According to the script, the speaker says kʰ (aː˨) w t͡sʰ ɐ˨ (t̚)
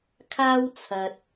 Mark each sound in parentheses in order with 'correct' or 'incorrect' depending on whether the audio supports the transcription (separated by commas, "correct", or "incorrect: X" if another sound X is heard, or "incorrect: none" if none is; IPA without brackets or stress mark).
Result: incorrect: aː˥, correct